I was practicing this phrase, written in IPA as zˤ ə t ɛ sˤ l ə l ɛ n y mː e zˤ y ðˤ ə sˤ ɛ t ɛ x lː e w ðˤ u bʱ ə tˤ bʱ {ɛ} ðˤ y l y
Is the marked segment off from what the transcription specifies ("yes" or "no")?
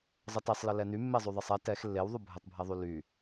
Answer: no